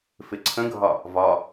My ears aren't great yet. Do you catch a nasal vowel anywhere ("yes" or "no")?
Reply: yes